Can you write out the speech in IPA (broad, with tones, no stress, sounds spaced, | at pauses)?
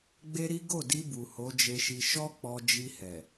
ɡ͡b e˦ ɾ i˦ ɡ o˦˨ d i˧ b u˨ h o˨˦ d͡ʒ e˧ ʃ i˧ ʃ ɔ˦ k͡p ɔ˧ d͡ʒ i˧ h ɛ˨